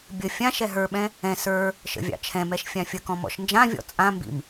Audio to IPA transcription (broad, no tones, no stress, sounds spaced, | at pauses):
bʲ ə fʲ ã ʃ ɛ ɦ ə˞ ɓ ɛ̃ | ɛ̃ s ə˞ | ʃ ə̰ vʲ ɑ̰ t͡ʃʰ ɛ̃ m ɛ ʃ fʲ ã fʲ ə k ɔ̃ m ɔ̰ ʃ n d͡ʒ ã vʲ ɔ̰ t͡sʼ ã m b ḭ m